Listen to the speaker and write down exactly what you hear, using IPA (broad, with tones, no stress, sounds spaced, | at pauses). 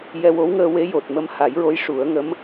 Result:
j ɛ˧ w o˧˥ w ŋ əː˧ w e˧˥ j o˨˩ t̚ m ə˧ m h a˨˩˦ j ɹ o˧˥ j ʂ u˨˩˦ ə̯ ŋ ə˧˥ m